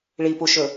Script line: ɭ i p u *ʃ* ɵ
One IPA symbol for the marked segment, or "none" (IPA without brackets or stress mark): ʃ